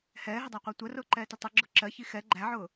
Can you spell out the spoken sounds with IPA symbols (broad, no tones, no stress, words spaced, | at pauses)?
hɛːɦɪdˤæqʷɑ tʷɜrʊːǃɛːtɪ tˤʊɡ͡ǁʊ ǁɜçi xɛ ɡ͡ǃæʕʊː